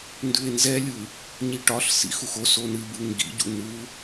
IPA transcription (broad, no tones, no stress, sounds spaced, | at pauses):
n d ʉ e̯ n z ɛ lʲ ɯ | ɲ i ʈ ɒ ɬ s ḭ x u x o s o n ɨ b ɯ ŋ ɡ ḭ ɟ ṵ n u